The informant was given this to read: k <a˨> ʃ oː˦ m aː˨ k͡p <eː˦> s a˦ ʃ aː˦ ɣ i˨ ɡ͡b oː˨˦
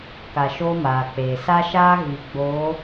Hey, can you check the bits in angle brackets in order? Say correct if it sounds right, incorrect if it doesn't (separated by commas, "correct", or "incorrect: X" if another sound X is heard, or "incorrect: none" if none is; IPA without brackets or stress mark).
correct, incorrect: eː˨